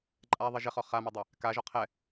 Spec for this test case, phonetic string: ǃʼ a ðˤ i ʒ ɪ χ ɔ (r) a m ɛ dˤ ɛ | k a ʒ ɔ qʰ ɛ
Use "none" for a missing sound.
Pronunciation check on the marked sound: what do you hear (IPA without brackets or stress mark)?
χ